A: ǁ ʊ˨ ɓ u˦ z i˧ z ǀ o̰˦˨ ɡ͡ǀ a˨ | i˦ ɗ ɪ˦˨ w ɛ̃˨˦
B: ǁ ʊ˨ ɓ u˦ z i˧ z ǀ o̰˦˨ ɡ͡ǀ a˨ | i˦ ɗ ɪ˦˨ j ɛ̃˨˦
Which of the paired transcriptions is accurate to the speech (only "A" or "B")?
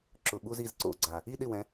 A